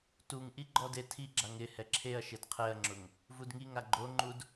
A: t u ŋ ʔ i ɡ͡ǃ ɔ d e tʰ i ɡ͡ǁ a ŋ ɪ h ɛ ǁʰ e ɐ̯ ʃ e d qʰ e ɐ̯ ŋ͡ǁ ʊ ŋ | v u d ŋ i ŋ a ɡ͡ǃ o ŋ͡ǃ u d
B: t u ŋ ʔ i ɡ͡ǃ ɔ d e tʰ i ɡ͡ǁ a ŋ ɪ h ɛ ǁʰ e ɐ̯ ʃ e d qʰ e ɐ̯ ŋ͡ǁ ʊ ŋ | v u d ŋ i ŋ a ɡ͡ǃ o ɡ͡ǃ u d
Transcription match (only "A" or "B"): A